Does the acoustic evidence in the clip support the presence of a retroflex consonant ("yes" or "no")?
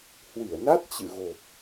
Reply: no